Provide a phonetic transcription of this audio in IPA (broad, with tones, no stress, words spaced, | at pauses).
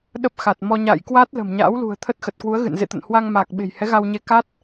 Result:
ɗə˦˥p̚xa˨˩t̚mɔ˧ ɲa̰ː˧˨jkwaː˦˥t̚ lə̤˨˩mɲa̰ː˧˥wlṳ˨˩ə̯ t̪ʰə˦˥t̚xə˨˩t̚kwu˨˦ə̯ɣɨ̰˧˨n zḛ˧˨t̪ə̰˧˨nhwa˧ŋma˨˩k̚ ɓe̤˨˩jhɛ˨˦ɣa˧wɲe˧ ka˦˥t̚